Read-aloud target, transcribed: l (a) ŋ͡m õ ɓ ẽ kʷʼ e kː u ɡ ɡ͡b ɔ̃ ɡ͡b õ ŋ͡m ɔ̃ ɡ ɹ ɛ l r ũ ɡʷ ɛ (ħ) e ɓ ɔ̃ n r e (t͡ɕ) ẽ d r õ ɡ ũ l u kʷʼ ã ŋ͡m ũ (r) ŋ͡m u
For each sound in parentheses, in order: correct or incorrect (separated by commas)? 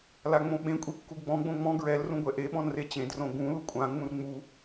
correct, incorrect, correct, correct